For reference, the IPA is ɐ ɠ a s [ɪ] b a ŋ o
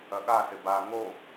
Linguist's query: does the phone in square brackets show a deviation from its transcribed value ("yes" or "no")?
no